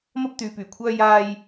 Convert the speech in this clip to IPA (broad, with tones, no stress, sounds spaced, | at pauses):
m ɐ˥ p̚ t̪ yː˨˧ p yː˨˩ kʷʰ œː˥ j aː˥ j